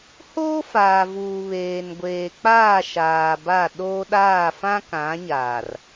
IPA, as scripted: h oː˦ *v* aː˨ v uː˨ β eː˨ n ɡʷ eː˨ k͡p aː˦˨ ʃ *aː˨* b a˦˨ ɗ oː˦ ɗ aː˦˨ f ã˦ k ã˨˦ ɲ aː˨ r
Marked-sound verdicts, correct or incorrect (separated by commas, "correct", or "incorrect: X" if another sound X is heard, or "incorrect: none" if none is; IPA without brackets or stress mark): incorrect: f, correct